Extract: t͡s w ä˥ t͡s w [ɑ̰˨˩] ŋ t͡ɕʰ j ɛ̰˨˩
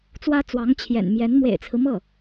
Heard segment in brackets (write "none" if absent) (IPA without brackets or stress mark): ɑ˧˥